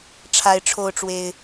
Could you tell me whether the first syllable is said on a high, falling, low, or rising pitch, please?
high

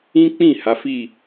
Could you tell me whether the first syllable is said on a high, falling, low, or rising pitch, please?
high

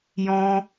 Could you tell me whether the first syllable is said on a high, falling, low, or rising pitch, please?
high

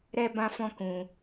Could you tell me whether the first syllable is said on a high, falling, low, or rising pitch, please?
high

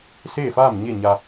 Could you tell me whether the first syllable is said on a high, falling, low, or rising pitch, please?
falling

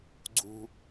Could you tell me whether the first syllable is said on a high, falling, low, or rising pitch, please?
high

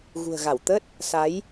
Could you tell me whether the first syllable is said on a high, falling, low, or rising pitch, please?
low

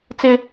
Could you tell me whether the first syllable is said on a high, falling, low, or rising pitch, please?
high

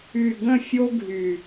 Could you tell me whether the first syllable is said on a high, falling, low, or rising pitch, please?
low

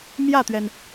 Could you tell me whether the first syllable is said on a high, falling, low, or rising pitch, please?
falling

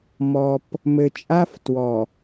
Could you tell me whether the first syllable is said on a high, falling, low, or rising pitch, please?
low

